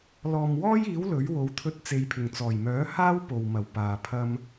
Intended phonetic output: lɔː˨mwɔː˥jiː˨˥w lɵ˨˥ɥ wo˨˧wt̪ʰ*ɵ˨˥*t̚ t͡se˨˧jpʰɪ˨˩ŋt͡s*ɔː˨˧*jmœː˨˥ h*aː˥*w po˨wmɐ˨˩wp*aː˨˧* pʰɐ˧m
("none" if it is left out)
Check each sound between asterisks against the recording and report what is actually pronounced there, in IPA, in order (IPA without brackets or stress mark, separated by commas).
ɵ˧, ɔː˨˩, aː˥, aː˨